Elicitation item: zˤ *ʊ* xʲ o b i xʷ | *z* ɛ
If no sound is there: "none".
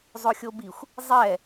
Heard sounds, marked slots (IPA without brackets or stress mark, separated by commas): ʊ, zˤ